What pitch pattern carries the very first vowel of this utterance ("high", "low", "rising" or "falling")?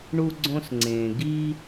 high